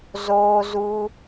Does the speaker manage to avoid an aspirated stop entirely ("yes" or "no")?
yes